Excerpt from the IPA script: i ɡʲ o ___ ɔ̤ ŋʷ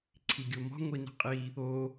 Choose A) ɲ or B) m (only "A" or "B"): B